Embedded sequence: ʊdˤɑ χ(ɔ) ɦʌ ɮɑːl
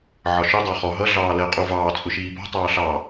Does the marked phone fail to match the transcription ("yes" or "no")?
no